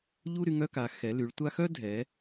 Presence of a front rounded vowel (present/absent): present